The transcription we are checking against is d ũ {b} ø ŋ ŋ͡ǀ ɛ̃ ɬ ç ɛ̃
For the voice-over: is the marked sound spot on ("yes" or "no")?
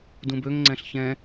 yes